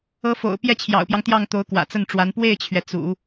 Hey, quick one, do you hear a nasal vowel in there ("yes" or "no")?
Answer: no